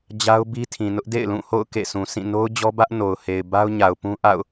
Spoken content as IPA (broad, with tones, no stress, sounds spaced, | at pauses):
d͡ʑ a˦ ʊ̯ b i˦ tʰ ĩ˨ n ʊ˦ ʔ d ḛ˦˨ ɪ̯ l ũ˦˨ h o̰˦˨ ʊ̯ k ḛ˦˨ s ũ˨ s ĩ˦˨ n o˦ ʊ̯ d͡ʑ ɔ˦ b ä˦ ʔ n o˨ ʊ̯ h e˨ ɪ̯ b a˦ ʊ̯ ɲ a˨ ʊ̯ p ũ˦ ʔ a̰˦˨ ʊ̯